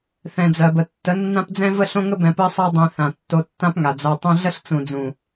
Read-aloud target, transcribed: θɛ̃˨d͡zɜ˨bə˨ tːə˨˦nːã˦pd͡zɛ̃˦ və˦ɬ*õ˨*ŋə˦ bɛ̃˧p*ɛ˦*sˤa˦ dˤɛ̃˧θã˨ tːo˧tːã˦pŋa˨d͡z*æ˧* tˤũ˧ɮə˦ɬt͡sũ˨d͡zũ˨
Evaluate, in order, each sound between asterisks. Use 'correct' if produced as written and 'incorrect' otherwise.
incorrect: õ˦, incorrect: ɜ˦, incorrect: a˧

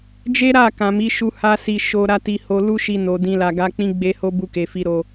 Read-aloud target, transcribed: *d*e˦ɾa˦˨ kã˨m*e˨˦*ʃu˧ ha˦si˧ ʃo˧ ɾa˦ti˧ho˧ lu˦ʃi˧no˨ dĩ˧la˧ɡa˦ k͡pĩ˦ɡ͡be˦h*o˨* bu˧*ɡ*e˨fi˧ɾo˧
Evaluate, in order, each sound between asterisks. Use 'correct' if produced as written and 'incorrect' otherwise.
incorrect: d͡ʒ, incorrect: i˨˦, incorrect: o˦, incorrect: k

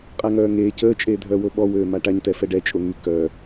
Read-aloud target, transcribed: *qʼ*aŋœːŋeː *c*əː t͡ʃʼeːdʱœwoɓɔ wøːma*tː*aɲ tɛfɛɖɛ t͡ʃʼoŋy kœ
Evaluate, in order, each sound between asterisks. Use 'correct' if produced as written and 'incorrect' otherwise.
correct, correct, incorrect: ʈ

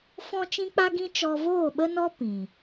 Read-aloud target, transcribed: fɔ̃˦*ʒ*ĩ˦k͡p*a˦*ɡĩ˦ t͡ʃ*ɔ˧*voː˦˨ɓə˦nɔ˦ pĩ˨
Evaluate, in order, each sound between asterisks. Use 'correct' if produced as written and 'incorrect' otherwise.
incorrect: t͡ʃ, correct, correct

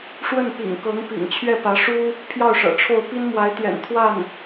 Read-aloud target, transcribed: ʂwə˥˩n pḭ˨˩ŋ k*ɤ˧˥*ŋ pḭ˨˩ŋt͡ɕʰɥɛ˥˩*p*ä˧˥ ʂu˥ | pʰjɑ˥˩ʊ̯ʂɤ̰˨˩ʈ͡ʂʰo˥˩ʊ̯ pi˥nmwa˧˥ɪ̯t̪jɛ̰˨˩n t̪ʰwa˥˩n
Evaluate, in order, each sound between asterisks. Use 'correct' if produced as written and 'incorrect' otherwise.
correct, correct

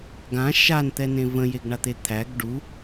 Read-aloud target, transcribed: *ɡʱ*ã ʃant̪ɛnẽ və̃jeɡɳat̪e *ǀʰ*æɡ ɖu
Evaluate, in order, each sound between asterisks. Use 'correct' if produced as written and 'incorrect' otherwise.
incorrect: ɡ, incorrect: t̪ʰ

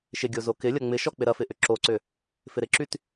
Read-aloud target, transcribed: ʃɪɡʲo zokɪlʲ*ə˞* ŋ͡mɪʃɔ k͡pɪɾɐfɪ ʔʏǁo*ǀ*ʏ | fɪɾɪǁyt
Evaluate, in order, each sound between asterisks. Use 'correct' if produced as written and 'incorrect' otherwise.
incorrect: ɐ, correct

